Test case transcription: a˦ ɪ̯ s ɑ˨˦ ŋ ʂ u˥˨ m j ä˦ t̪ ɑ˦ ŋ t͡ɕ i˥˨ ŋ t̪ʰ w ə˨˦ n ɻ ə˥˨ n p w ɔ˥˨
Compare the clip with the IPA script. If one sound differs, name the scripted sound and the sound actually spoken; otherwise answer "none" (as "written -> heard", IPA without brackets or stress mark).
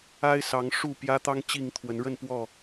m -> p